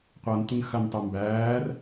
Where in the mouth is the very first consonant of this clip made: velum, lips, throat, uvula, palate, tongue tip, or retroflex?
uvula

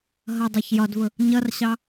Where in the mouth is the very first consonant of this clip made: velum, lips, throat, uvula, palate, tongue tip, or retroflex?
throat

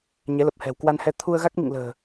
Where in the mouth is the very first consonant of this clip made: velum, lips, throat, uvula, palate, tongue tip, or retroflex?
palate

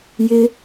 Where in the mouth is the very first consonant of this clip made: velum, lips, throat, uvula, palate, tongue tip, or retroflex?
palate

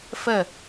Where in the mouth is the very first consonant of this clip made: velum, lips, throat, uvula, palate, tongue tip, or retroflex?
lips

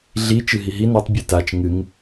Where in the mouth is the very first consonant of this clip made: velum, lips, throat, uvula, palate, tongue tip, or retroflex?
tongue tip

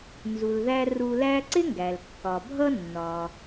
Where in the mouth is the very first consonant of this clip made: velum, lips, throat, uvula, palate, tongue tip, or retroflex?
tongue tip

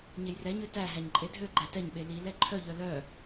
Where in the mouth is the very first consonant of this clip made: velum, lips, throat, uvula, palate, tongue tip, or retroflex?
palate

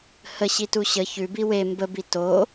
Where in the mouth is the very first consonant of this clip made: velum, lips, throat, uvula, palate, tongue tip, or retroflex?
throat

